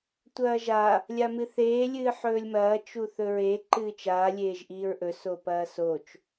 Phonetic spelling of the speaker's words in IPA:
tʷɐːʒa | lʲamɨθeː lʲɨːħɵːlʲmɐː t͡ʃuθɵɹe ǃɨːt͡ʃaː lʲeːʒʔiːɹʔɵ sopɐːsot͡ʃ

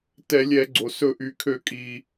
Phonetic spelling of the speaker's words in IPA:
tɛ˧˩˧lʲɛ˧˩˧ɡ͡ǀo˩ sɵ˧˩˧ʔy˩kʰø˧˩˧ kʼi˩

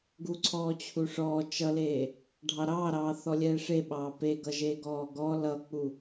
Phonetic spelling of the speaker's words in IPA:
ɡuǀʰɔːt͡ɕʰuʂɔː t͡ʃʌleː | ɖʱɑɾɑːɾɑː θɔlʲɛːʂeɓɑː peɡʌʒeː ɡɔːɡɔ lʌk͡pu

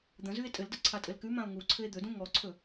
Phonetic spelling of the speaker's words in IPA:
d̪ə̃zʉe̯ tʼɘldə ǀʰatʼɘlkʉmão̯ ŋuǀʰɘe̯ d̪ɵdũ ŋɔǀʰɵ

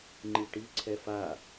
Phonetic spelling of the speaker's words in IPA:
ŋ͡ǃiʈiǀʰɛ fa

